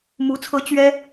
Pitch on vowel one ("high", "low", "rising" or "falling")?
rising